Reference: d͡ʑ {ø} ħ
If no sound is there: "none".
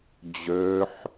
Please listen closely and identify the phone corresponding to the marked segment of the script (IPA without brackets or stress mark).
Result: ø